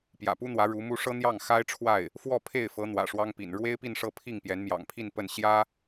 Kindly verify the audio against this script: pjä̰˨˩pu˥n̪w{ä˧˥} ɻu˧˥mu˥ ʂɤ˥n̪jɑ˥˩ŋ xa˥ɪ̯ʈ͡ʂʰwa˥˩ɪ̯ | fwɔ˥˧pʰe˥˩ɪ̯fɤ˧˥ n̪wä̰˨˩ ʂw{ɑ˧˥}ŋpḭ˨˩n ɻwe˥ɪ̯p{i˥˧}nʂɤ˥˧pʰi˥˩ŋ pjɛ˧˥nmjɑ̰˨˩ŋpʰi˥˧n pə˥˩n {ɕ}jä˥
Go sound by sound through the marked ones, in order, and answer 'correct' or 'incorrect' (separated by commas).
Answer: correct, incorrect, correct, correct